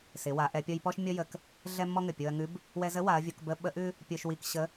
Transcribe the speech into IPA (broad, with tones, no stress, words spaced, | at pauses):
sɪ˩˧ wa˩˧ʔɛ˩˧pʲɔ˧j pɔ˥ʃmʲɔ˥jə˧k | ɮɛ˥ mːɔ˥ŋɘ˩ pʲo˧ɐ̯ŋʉ˧˥b | wɛ˧zə˧˥wa˩˧ɐ̯vʲo˩˧k bə˧˥ɓə˧˥ʔʉ˥ | pʲo˧ʃwi˧kɕə˧˥